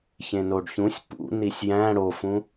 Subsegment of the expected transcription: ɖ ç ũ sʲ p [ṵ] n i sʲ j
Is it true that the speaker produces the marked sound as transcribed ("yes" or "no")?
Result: yes